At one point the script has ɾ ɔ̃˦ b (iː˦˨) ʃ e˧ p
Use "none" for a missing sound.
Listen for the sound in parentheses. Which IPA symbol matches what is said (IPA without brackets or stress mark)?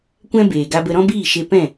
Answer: iː˦˨